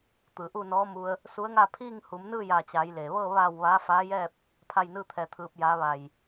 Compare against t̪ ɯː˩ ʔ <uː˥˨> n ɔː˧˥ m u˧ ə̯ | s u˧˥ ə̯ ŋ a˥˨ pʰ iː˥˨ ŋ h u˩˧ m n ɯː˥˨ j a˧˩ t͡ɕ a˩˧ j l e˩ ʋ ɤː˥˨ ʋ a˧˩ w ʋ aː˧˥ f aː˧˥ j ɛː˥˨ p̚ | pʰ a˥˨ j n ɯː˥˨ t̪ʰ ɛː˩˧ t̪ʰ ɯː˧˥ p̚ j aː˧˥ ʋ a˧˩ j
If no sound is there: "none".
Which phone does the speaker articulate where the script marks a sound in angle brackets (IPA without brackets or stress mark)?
uː˥˨